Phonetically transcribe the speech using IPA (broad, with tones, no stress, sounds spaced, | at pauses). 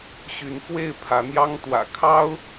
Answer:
ɕ y˨˦ n f w e˥˨ ɪ̯ pʰ ä˨˦ n̪ j ɑ˦ ŋ t̪ w ä̰˨˩ kʰ ɑ˦ ʊ̯